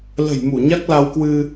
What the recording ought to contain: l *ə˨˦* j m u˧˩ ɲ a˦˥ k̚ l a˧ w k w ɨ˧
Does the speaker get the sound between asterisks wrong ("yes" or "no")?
yes